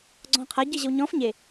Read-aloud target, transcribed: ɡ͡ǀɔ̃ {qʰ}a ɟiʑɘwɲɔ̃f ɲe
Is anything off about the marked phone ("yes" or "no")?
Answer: no